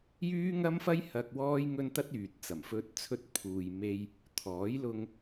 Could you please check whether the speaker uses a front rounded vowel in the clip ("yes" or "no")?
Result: yes